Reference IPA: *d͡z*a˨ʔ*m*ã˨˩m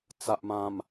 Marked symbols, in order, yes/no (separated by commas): no, yes